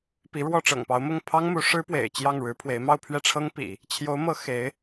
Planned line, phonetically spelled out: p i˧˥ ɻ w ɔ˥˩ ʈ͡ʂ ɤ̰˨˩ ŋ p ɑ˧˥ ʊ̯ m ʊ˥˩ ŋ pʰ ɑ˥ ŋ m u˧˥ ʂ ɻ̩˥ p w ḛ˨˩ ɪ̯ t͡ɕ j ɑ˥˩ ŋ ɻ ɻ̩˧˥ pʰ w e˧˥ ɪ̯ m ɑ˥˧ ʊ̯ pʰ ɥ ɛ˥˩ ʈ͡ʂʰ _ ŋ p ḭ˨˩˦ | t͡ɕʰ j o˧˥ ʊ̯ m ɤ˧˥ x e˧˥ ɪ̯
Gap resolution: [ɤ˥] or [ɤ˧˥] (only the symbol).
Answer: ɤ˥